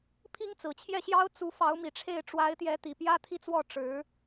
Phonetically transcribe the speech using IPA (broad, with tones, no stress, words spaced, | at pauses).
pʰi˥ŋt͡sɹ̩˨˩t͡ɕʰjɛ˥˩ɕjɑ˥ʊ̯ t͡su˧˥fɑ˧˥ʊ̯mi˨˩ʈ͡ʂʰe˥˩ɪ̯ ʈ͡ʂwa˧˥ɪ̯t̪jɛ˧˥ t̪i˨˩pjä˥t̪ʰi˥˧t͡swɔ˥˩ ʈ͡ʂɻ̩˧˥